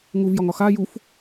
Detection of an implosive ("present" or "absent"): absent